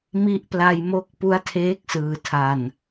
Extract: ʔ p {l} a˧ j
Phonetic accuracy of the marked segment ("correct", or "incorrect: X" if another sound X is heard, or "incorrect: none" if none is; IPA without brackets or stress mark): correct